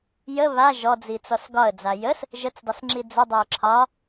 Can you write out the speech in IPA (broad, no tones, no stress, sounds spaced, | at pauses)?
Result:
j ə β a ʒ ɔ d͡z i t͡s ɔ s ɡ ɒ ə̯ d͡z a j ə s | ʒ ə t͡s dˤ ə s ŋ͡ǁ i d͡z ə dˤ ɛ ə̯ ǁʰ ɒ